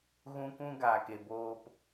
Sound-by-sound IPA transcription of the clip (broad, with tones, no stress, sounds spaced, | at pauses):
ɣ ũ˦ kʷ ũ˦ ɡ aː˨ k e˨ b oː˧ p